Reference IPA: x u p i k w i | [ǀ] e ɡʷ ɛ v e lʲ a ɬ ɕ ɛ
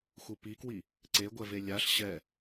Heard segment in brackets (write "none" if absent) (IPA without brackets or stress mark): ǀ